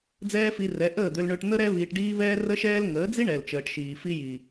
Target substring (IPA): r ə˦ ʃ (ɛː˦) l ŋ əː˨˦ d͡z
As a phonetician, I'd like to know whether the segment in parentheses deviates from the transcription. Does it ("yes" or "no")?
no